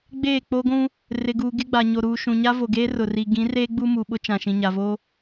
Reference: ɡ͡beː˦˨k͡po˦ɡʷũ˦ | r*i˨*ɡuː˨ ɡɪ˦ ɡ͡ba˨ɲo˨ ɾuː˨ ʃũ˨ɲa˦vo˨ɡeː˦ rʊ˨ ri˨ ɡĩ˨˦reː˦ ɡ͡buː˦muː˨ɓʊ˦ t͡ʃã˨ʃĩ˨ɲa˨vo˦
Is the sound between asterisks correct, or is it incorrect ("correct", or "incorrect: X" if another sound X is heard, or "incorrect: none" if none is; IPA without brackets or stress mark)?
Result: incorrect: ɪ˨